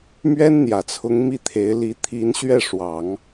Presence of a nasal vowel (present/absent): absent